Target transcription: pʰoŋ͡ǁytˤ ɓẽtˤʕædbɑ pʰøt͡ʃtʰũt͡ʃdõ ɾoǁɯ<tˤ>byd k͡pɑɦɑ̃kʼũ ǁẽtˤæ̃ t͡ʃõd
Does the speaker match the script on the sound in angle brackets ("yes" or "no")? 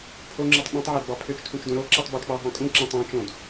yes